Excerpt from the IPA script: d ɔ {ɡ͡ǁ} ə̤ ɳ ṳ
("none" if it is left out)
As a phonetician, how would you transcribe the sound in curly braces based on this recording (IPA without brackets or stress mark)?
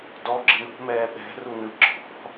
ɡ͡ǁ